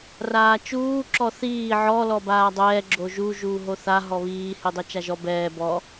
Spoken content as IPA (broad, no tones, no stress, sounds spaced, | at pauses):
r aː t͡ʃ uː ǁ ɔ θ iː ʕ ɔ l ɔ b aː dˤ ɛː ɡ͡ǁ o ʒ u ʒ uː ɦ o θ a ɦ ɔ β iː h i dˤ ɛ t͡ʃ a ʒ ɔ b ɛː b ɔ